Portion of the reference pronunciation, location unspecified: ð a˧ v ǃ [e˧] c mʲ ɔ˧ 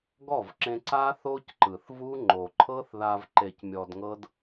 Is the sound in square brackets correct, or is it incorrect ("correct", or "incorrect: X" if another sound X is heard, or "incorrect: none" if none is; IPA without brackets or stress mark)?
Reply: correct